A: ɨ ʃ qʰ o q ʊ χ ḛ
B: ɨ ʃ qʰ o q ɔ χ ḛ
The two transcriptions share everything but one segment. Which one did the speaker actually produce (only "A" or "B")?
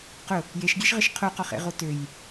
B